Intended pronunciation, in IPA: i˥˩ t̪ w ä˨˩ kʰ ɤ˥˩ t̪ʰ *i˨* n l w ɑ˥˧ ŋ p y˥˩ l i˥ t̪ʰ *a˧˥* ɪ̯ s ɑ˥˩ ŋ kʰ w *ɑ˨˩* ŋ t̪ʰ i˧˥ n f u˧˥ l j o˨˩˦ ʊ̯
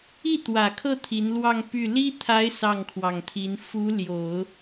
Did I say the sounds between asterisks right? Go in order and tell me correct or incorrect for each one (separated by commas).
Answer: incorrect, correct, correct